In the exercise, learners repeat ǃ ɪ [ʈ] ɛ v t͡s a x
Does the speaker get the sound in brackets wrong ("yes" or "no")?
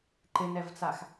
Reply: yes